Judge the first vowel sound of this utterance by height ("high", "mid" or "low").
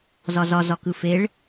low